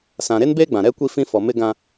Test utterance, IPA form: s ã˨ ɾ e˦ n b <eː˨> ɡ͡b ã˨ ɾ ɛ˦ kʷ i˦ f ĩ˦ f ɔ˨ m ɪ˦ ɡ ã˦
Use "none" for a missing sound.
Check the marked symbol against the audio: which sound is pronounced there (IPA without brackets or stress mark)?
eː˦